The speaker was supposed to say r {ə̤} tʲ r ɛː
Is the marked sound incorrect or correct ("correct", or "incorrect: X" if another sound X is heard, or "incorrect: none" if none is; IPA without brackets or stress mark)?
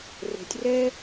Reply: correct